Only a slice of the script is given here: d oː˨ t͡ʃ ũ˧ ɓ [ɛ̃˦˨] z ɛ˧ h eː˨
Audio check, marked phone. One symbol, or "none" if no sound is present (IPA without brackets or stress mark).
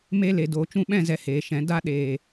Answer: ɛ̃˦˨